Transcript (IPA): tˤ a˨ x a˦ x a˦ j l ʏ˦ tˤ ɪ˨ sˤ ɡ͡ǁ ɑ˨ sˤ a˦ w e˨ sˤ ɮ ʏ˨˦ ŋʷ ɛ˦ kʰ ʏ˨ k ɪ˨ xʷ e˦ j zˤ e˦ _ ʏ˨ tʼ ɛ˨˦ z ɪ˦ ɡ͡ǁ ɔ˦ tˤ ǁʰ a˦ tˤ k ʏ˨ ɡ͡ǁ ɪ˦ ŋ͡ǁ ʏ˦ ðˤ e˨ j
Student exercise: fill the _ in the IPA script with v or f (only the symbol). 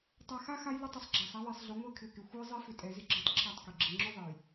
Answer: f